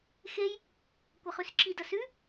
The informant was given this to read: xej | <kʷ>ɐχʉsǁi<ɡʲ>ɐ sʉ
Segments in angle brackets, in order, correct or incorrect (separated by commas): correct, incorrect